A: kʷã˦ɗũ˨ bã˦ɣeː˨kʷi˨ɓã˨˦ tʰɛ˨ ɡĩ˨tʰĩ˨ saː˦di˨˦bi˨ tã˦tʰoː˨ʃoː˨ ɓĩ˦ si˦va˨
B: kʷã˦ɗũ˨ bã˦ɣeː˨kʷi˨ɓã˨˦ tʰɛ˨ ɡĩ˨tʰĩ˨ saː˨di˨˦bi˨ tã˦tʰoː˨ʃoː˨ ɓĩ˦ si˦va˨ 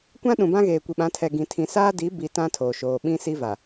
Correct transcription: A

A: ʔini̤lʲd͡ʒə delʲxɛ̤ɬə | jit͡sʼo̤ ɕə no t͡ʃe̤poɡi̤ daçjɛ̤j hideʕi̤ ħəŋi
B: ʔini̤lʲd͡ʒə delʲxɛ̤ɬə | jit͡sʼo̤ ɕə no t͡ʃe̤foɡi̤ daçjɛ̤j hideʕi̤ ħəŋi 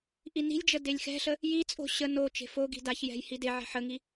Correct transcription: B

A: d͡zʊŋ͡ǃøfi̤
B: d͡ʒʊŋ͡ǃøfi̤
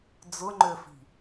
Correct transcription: A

